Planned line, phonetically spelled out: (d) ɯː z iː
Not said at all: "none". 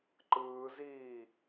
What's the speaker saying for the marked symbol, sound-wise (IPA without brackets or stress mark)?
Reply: ǃ